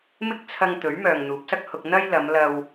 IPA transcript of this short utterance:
m ɪ˥ k̚ t͡sʰ ɐ˧ ŋ t̪ ɵ˨˥ ɥ m œː˨ ŋ n̪ uː˨˥ p̚ s ɐ˥ k̚ h ʊ˧ k̚ n̪ ɐ˥ j l ɐ˨˧ m l ɐ˧ w

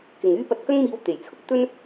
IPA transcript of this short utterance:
k ɪ˨ ŋ yː˥ p ɐ˧ t̚ k ɐ˥ ŋ m iː˧ w t̪ e˨˩ j t͡sʰ ʊ˥ k̚ t̪ ɵ˥ n

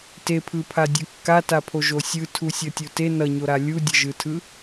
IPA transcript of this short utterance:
t e pʰ ɯ pʰ a dʲ ʌ kː a t a pʰ o ʒ o sʲ ɯ tʰ u sʲ ʌ tʲ o t e n ʌ ɲ o ɾ a lʲ u dʲ ʌ ʒ ɯ tʰ ɯ

